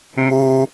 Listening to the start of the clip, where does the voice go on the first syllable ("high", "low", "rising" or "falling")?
high